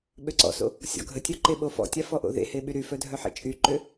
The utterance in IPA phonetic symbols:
ɓ ø ǀ ɔ̰ s o̰ | sʲ ɔ̰ ɡʱ ə tʲ œ ǃ e ɓ o f ɔ̰ tʲ a f ɔ ʔ o̰ ð ḛ h e ɓ y ɾ y f œ dʱ œ ħ ḛ t͡ʃʼ y ǃ ø

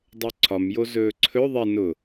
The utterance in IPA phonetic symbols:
dˤ ɵ ǀʰ ɒ m j o z ɵː ǀʰ ɵ ðˤ ɛ n ʊ

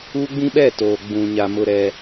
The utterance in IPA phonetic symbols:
uː˦ ɡ͡b ĩ˦ ɓ ɛ˦˨ t oː˨ ɡ͡b ũ˨ ɲ a˨ m ʊ˨ ɾ ɛ˨

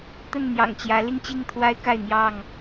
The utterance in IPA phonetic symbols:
t̪ ə˥˨ n n̪ j ɑ̰˨˩ ŋ t͡ɕ j ä˨˦ l i˥˨ ŋ t͡ɕ i˥˨ ŋ t̪ʰ w a˦ ɪ̯ k a˥˨ ɪ̯ n̪ j ɑ˥˨ ŋ

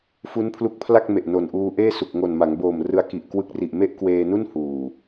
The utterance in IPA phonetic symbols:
f u˦˥ n pʰ l u˦˥ k̚ pʰ l a˥˩ k̚ m e˨˩ ʔ n o˨˩ n ʔ uː˧ ʔ eː˥˩ s u˨˩ k̚ ŋ o˨˩ n m a˩˦ ŋ b oː˨˩ m r ɯ˧ a̯ k i˨˩ ʔ k w ɯ˦˥ k̚ r i˨˩ ʔ m e˥˩ ʔ k w eː˧ n u˥˩ n h uː˨˩

